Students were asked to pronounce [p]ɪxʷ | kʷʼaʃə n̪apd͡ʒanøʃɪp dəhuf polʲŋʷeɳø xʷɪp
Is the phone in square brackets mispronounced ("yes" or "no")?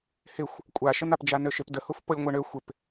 yes